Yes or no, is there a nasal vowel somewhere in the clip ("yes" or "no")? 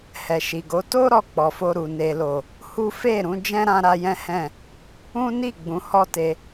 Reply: yes